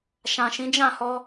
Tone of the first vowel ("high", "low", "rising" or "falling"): low